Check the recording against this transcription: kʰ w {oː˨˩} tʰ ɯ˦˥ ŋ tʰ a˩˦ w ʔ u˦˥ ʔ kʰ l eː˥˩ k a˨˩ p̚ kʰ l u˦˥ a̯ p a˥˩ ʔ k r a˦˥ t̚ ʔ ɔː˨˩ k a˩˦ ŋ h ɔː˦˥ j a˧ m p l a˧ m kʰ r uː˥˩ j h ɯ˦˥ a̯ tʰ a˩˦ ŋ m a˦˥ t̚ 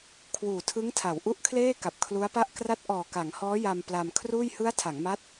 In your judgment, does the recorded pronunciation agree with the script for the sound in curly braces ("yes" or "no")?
no